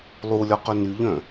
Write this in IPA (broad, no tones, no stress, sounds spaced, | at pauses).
lˠ u lʲ ɒ q œ n y ʎ œ̃